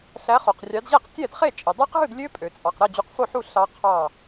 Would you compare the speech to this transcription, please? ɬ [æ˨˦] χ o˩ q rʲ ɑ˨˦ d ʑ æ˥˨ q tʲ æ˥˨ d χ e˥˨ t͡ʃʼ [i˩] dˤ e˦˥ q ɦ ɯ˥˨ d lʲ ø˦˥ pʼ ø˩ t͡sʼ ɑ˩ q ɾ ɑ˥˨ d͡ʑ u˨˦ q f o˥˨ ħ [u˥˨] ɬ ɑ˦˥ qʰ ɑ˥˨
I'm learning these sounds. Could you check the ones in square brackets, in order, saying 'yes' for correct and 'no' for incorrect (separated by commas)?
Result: yes, yes, yes